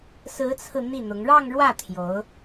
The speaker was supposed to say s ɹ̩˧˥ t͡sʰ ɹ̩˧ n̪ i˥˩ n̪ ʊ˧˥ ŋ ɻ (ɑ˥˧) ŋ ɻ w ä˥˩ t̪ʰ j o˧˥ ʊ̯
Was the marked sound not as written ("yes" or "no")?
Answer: no